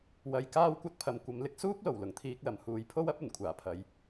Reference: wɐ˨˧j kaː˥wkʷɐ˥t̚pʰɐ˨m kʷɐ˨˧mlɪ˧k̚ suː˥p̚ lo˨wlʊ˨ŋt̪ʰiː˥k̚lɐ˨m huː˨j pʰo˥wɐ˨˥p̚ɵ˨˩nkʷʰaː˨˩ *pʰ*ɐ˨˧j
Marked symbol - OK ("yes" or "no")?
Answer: yes